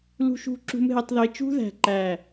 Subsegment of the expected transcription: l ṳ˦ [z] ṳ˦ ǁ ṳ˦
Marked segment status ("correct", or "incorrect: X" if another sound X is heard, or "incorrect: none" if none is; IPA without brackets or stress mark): incorrect: ʃ